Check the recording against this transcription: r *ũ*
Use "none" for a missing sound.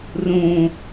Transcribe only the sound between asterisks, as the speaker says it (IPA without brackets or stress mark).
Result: ũ